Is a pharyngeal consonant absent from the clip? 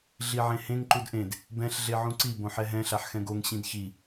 no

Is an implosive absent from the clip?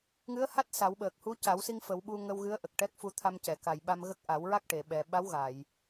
no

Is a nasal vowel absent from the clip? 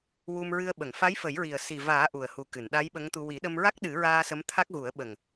yes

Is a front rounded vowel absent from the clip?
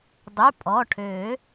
no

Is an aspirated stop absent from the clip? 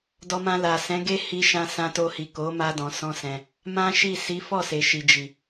yes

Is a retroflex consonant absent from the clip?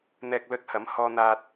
yes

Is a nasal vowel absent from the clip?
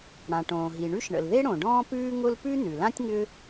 no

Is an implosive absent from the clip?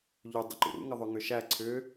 yes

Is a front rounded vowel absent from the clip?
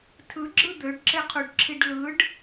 no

